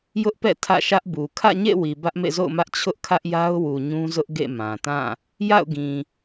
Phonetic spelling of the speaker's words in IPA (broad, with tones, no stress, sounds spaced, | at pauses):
j ʊ˦ ʔ p ɛ̰˦˨ tʰ ä̰˦˨ ʃ ä˦ ʔ b u˨ kʰ ä̰˦˨ ɲ ḛ˦˨ w i˨ b ä˦ ʔ m ḛ˦˨ z o̰˦˨ ʊ̯ m ä˦ ʔ t͡ɕʰ ʊ˦ ʔ kʰ ä˦ ʔ j a˦ ʊ̯ w u˨ ɲ ũ˦ z ʊ˦ ʔ ɡ ḛ˦˨ m ã˨ t ã˦˨ | j a̰˦˨ ʊ̯ ɡ ĩ˨